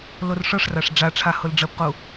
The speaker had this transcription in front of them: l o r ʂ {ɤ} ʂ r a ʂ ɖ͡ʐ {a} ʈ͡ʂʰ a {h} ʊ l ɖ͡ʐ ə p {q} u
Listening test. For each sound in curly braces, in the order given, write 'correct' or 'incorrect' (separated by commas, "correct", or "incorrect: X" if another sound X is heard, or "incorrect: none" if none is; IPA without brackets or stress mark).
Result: correct, correct, correct, correct